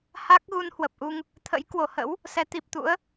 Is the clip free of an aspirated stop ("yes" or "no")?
no